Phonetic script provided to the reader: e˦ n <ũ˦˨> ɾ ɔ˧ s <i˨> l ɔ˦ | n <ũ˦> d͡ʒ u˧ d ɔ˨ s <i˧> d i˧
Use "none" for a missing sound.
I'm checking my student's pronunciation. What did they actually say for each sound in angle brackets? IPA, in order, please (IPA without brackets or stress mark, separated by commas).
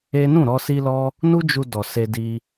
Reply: ũ˦˨, i˧, u˦, e˧